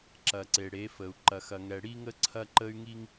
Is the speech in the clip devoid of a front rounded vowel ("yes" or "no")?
no